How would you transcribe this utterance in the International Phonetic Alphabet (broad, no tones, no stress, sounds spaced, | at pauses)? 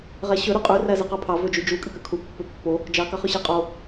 ʁ æ ɕ ø ɾ y qʼ y r æ z i q ɑ pʰ ɑ v ø d͡ʒ y d͡ʒ u kʼ y k ø kʰ u pː ø pː o | d͡ʒ ɑ k ɑ χ ø ɕ æ qʼ o